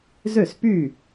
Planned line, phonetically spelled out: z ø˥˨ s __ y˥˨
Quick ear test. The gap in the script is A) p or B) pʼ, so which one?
A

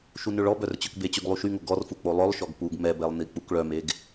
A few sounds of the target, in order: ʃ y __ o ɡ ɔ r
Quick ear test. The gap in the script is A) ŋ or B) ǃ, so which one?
A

